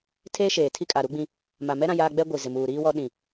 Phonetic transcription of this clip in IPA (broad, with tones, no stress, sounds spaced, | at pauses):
tʰ eː˦ ʃ eː˨ tʰ i˦ kʼ a˨ ɾ u˦ ɡ͡b ĩ˦ | m a˨ m ɛ˦ ɾ ã˦ j aː˦ ɡ͡b ɛ˦ ɡʷ i˨ z ɪ˨ m uː˨ ɾ iː˦ w ɔ˦ ɗ ĩ˨